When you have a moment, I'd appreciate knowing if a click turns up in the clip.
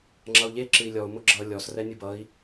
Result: yes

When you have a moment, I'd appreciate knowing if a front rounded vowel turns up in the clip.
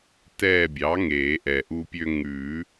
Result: yes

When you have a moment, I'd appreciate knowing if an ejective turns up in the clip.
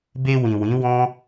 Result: no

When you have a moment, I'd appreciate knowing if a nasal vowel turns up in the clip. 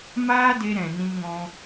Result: yes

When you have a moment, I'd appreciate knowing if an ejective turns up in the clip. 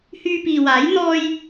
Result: no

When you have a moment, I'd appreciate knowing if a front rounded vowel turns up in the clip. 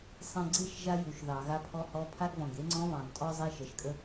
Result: no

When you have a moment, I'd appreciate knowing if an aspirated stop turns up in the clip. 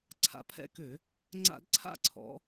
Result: yes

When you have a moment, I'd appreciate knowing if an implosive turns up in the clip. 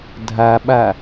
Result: yes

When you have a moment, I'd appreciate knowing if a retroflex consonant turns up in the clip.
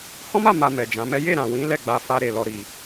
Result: no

